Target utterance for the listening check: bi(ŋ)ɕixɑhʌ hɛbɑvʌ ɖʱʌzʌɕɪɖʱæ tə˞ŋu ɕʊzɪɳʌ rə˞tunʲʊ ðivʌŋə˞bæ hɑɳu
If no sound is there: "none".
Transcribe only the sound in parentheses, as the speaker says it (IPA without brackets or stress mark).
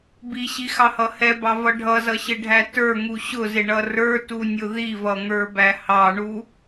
none